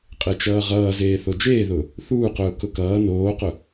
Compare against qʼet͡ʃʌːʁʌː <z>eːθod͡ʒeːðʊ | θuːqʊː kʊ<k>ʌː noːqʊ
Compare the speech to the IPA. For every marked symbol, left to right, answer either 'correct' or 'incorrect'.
correct, correct

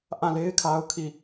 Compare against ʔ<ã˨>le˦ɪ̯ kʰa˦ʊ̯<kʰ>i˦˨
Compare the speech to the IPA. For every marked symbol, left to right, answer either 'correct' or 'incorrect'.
incorrect, correct

